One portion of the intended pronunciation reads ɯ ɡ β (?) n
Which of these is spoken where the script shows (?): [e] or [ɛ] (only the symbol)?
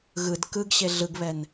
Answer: ɛ